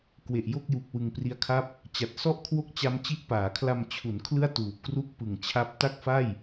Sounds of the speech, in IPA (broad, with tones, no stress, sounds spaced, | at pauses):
k w e˨˩ ʔ j o˥˩ k̚ j u˨˩ k̚ w ɯ˧ ŋ p r i˦˥ a̯ kʰ a˥˩ p̚ | t͡ɕ a˨˩ t̚ s ɔ˥˩ ʔ kʰ w o˥˩ k̚ t͡ɕ a˦˥ m t͡ɕ i˦˥ ʔ p aː˩˦ kʰ l a˧ m t͡ɕʰ u˩˦ n kʰ l ɯ˥˩ a̯ t uː˨˩ p̚ k r u˥˩ k̚ p ɯ˨˩ ŋ t͡ɕʰ a˦˥ p̚ t a˥˩ k̚ f a˥˩ j